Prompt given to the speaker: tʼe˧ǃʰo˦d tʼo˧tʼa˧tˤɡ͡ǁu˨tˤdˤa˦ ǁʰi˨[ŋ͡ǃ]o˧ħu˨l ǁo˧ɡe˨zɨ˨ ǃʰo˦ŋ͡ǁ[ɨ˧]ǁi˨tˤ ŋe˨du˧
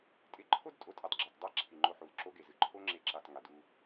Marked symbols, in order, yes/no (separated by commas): yes, no